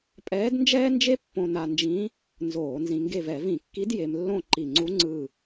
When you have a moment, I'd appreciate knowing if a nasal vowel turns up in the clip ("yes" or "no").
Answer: yes